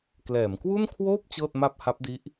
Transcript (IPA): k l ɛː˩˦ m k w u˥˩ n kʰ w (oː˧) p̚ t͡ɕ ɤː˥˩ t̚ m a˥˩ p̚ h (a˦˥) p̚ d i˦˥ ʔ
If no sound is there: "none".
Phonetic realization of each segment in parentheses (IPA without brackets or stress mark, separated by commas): oː˥˩, a˦˥